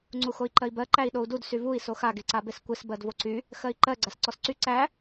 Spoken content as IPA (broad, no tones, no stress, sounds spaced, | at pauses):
ŋ͡ǀ u x o i̯ ǃ ɜ i̯ b ɜ ǃ æ i̯ ɗ o u̯ d u d s y v u i̯ s o x a ɡ e ǀ a b e s kʷ e s b ɜ d v o ǀ y | x ɜ i̯ ǃ ɜ ɡ͡ǀ a s ǀ ɔ s ǀ y ǀ æ